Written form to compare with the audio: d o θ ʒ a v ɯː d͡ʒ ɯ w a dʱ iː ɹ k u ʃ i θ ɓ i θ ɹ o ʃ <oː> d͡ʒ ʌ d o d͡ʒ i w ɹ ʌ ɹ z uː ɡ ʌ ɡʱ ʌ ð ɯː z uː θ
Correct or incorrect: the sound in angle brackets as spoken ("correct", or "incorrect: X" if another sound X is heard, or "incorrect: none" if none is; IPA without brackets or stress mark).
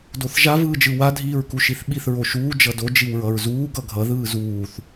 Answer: incorrect: uː